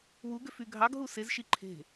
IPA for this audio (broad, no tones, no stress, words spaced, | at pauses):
wuɡøfy ɡʱɑɡɦu sezʃi ǃʰe̤